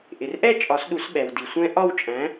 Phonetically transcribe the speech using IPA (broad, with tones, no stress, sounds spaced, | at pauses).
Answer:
ʔ ɪ˩ r ʔ ɛ˥˧ t͡ʃʼ ɒ˨˩˦ s ɗ u˨˩˦ s ɓ ɛ˩ w d i˩ sʷ ɛ̃˦˥ ʔ ɒ˥˧ w t͡ʃʼ æ̃˨˥